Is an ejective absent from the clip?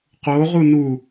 yes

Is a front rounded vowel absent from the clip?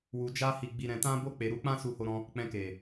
yes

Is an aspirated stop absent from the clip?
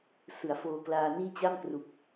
yes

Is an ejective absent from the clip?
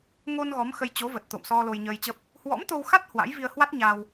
yes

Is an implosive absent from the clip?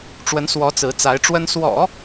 yes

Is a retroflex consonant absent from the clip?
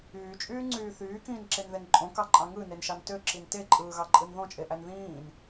yes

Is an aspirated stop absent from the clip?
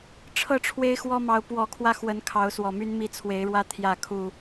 no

